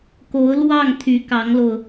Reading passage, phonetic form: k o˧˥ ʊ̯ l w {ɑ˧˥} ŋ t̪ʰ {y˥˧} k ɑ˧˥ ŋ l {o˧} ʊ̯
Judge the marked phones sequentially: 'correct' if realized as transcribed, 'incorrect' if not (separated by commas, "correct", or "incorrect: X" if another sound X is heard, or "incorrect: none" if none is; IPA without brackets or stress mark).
incorrect: ɑ˥˩, incorrect: y˧˥, correct